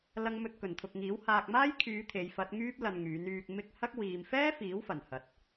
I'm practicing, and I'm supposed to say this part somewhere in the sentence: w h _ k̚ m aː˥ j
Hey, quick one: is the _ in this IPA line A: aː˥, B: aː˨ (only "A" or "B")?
B